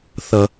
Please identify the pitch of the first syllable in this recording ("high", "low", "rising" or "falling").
low